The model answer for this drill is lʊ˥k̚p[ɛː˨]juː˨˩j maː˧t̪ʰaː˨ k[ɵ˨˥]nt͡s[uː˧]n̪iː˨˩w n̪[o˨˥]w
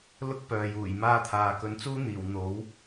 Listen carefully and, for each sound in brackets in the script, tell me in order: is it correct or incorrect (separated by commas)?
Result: incorrect, correct, incorrect, correct